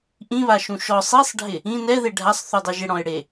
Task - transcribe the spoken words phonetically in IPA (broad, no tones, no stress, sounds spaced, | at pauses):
ʔ ĩ β a ʃ ũ ʃ ɔ sˤ i sˤ ɖʱ ɪ | ĩ n ɛ ð e ɖʱ a sˤ θ u dˤ ɛ ʒ ɪ ɽ ɔ̃ ɪ̯ ɽ e